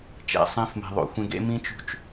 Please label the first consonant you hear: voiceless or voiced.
voiceless